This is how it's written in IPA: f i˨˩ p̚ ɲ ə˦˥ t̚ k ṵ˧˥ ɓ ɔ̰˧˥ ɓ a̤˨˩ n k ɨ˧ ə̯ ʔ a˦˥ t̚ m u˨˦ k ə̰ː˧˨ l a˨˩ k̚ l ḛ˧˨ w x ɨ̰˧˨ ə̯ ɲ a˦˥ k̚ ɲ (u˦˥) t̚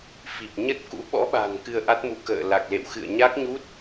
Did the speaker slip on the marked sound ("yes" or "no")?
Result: no